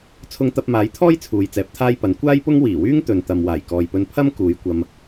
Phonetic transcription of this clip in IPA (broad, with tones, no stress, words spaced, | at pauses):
t͡sʰʊ˧ŋt̪ɐ˧p̚maː˨˥jt̪ʰɔː˥j t͡sʰuː˨jt͡sɛː˨˥p̚t̪ʰaː˥jpɐ˨˥n kʷaː˥jpʊ˥ŋ wiː˨˩wyː˥ŋ t̪ɵ˨nt̪ɐ˨m waː˨˩jkɔː˨jpɵ˧n pʰɐ˥m kuː˨˧jkʷɐ˧m